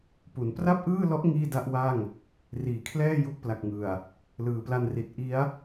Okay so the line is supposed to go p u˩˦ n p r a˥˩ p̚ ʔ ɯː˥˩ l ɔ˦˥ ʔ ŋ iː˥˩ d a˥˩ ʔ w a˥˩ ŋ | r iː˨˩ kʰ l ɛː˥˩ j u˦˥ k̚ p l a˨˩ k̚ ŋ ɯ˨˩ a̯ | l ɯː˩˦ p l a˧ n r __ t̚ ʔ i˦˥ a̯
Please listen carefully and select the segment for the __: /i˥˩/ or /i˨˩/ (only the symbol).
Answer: i˨˩